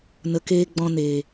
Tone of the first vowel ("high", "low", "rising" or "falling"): low